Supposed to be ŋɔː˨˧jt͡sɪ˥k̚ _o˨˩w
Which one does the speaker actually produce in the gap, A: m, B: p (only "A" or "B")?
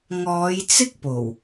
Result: B